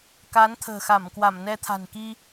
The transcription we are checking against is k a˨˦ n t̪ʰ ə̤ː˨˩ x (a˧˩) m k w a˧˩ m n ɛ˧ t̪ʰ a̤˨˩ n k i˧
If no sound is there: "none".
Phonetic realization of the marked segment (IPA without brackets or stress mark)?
a˧˩